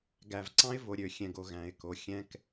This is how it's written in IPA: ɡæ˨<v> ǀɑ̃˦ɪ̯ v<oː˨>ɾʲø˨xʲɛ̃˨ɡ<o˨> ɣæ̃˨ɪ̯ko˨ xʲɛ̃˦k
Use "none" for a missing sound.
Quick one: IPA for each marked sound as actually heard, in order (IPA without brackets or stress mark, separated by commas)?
v, o˨, o˨